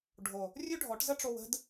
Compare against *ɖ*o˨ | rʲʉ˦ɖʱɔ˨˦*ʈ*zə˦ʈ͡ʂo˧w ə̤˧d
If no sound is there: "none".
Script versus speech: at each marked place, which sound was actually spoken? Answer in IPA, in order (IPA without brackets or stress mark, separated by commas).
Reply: ɖʱ, ʈ